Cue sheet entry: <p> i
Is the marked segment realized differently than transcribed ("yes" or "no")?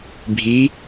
yes